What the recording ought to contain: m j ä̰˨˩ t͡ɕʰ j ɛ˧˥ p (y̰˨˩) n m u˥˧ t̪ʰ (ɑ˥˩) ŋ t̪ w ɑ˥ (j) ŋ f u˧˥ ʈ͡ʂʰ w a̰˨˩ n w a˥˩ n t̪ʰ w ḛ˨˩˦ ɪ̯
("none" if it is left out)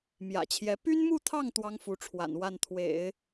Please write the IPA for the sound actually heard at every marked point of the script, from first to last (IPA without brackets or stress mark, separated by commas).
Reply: y˥, ɑ˥˩, none